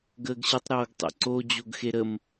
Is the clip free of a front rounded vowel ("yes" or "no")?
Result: yes